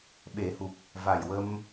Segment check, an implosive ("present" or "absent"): present